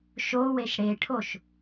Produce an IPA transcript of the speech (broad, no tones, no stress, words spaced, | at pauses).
ʃo weʃɽeʈʰoʃ